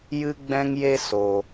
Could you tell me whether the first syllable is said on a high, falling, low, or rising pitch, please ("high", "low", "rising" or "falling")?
high